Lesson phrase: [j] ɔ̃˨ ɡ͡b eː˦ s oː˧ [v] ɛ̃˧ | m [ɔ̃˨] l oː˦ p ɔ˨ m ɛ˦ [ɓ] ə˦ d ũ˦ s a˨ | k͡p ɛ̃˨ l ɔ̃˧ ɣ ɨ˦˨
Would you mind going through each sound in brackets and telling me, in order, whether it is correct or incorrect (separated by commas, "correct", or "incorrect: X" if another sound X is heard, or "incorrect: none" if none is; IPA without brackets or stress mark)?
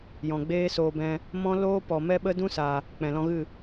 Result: correct, incorrect: b, incorrect: ɔ̃˦, correct